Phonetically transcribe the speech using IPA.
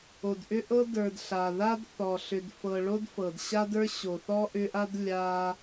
o˩ d ʔ ʏ˦ ʔ ɤ˦ d ə˞˨ d ɬ a˩ ð a˥ d θ ɔ˩ ɬ ʏ˨ d f ɤ˨ ɭ o˦ d f ɤ˩ d ɕ a˦ d ə˞˦ ɕ o˩ θ ɔ˦ ʔ ʏ˦ ʔ a˥ d lʲ a˦

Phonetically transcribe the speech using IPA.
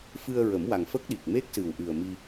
f ɨ˧ ə̯ ɹ ə˨˩˦ m w a˨˩ ŋ f ə˦˥ k̚ ɗ i˨˩ k̚ m e˦˥ k̚ s ɨ˨˩ w ʔ ɨ˨˩ ə̯ m i˧

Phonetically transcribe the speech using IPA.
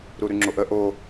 ɾ u ɾ ʉ ŋ͡ǁ o ʔ ə ʔ o

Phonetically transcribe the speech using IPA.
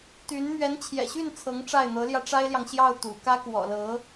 t̪ y˧˥ n m ɥ ɛ˧˥ n t͡ɕʰ j ɛ̰˨˩ ɕ y˥˩ n t͡sʰ ɤ˧˥ ŋ ʈ͡ʂ a˥˩ ɪ̯ n̪ ɤ˧˥ l j ä˧ ʈ͡ʂ a˥ ɪ̯ l j ɑ˨ ŋ ɕ j ɑ˥˩ ʊ̯ t̪ ṵ˨˩ k ä˥ k w ɔ̰˨˩ l ɤ˧˥

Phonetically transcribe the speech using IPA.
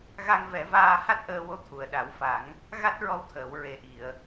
ɣ a˧ ŋ v ɛ˨˩˦ v aː˧ h a˦˥ t̚ ʔ əː˧ w o˧˥ t̪ʰ u˨˩˨ ə̯ ɗ a˨˩˦ w f a˨˩˦ ŋ | ɣ a˦˥ t̚ ɹ ɔ˧ w t̪ʰ əː˨˩˨ w ɹ e˨˩ ʔ i˨˩˨ ə̯

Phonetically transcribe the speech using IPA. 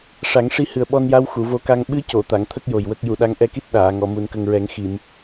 ʂ a˨˩˦ ŋ ʂ i˧ h ɨ˨˩ ə̯ ɓ ɔ˧ n j a˧˥ w x u˨˩˨ v o˧˥ k a˧ ŋ ɓ ɨ˧˥ c o˨˩˨ t̪ a˨˩˨ ŋ t̪ʰ ə˦˥ k̚ j o˨˩ j w ə˦˥ k̚ j u˨˩˨ ɗ a˧˥ ŋ ʔ ɛ˧ k i˦˥ t̚ ɗ aː˨˩˨ ŋ ɔ˨˩˨ m u˨˩˨ n k ə˨˩ ŋ ɹ ɛ˨˩˦ ŋ x i˨˩˨ m

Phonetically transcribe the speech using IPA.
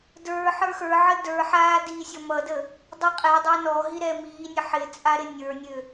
d ə˞ ħ ə˞ x ə˞ ʕ ə d ə˞ ħ aː d iː sʲ ɔ m ʌ d ə | dˤ i qʼ ɛ dˤ a n ɔ ɦ i ɾ ɛ m iː nʲ ə ħ ɪ t͡sʼ a ɾ ɪ nʲ ə˞ nʲ ø

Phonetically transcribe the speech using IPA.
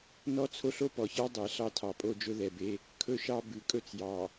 n ɔ˦ t͡sʰ o˦ ɬ o˦ p ɔ˨ ç ɑ˦ dˤ ɛ˨ ɬ ɑ˦ tʰ ɑ˨ pʼ o˦ d͡ʒ ɵ˦ ð ɛ˨ b e˦ | kʰ ɵ˦ ʃ ɑ˦ b ʉ˨ kʼ ɵ˦ t͡s j ɑ˨

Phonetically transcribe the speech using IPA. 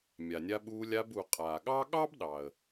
mʲ a˩ nʲ a˧ ɓ uː˧ lʲ a˧ b u˩ qʼ aː˩ ɠ ɑ˥ ɠ ɑ˥ b ɗ ɑ˩ ə̯

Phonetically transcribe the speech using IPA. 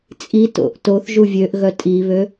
t͡sʼ i t o̰ ʔ t o θ ʒ u vʲ ø ʔ ɣ œ tʼ i β ø

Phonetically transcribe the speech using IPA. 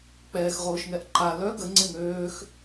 k͡p ɛː x ʁ oː ʃ ŋ ɛ ʔ ǃ a l œ ɡ ə ŋ͡ǀ e ŋ øː x

